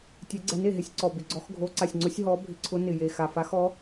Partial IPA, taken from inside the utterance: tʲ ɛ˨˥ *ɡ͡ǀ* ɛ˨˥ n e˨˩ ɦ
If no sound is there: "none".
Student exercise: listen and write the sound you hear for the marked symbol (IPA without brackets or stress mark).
ɡ͡ǀ